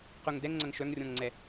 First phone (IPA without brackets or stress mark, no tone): q